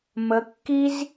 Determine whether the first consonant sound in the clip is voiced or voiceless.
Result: voiced